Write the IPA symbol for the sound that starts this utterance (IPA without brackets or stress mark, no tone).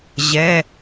ʑ